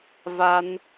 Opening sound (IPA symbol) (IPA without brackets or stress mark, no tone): v